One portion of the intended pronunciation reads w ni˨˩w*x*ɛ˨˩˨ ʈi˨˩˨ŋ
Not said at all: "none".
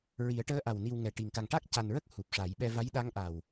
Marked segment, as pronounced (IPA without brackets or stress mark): ŋ